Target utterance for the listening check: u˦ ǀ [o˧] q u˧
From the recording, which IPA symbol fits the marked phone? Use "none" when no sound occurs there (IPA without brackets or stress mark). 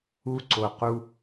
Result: o˧